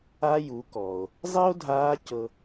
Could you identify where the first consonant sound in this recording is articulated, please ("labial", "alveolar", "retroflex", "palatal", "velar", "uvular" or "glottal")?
palatal